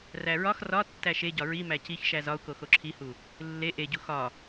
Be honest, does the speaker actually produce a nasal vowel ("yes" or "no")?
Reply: no